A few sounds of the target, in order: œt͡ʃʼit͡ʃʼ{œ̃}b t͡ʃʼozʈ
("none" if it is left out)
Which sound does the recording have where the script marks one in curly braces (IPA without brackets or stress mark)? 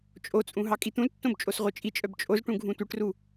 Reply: œ